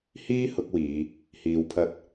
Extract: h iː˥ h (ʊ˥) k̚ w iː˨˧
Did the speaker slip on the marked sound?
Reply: yes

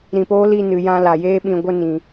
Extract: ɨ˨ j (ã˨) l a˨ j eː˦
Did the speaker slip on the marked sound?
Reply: yes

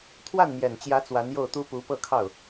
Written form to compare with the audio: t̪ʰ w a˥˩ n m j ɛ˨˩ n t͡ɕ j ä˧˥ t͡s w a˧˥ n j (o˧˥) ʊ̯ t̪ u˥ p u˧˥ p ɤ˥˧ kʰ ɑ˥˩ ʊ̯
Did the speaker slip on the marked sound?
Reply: yes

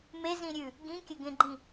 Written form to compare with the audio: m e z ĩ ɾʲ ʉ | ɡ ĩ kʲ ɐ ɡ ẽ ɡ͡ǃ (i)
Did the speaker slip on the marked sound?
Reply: yes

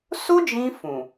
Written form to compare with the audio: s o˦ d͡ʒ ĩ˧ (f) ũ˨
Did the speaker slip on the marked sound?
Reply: no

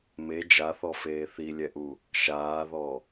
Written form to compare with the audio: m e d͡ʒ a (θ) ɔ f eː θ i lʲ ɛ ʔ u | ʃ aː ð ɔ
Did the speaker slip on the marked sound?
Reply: no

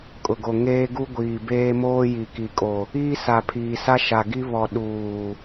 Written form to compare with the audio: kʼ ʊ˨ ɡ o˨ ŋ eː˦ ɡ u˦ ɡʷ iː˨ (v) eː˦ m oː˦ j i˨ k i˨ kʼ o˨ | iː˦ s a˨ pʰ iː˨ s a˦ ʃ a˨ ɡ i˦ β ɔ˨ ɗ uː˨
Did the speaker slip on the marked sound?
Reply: yes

